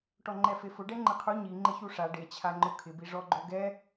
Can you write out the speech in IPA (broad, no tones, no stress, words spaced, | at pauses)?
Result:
ʈɔŋ͡ǃɛfefʊ ɖɛŋ͡ǃɪqʰu ɲi ŋ͡ǃɪçuʂa ɖet͡ɕʰaŋ͡ǃʊ kʰɪbi ʐɔɡ͡ǃoɡɛ